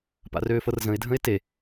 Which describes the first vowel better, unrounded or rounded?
unrounded